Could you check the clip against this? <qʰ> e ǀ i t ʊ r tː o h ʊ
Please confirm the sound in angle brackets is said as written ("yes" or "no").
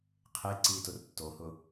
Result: yes